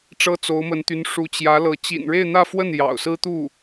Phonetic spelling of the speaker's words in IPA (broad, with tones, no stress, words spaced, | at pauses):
ʈ͡ʂɤ˥t͡so˧˥ʊ̯mə˧˥nt̪y˧˥n ʂu˧˥t͡ɕjä˧˥lɤ˧˥ t͡ɕḭ˨˩nɻe˥˧ɪ̯n̪ä˥˧fwə˥˩n jɑ̰˨˩ʊ̯sɹ̩˥t̪u˥˩